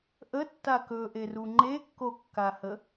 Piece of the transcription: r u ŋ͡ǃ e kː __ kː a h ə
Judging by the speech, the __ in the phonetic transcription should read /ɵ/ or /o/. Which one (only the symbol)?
o